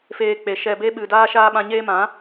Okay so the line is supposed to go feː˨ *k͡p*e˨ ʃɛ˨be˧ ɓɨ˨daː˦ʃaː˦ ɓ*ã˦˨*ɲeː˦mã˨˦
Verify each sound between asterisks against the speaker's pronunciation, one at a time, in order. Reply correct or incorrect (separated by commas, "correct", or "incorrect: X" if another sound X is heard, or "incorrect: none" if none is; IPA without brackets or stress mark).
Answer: correct, incorrect: ã˧